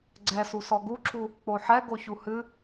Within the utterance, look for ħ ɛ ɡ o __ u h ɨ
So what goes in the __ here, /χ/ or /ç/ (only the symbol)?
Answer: ç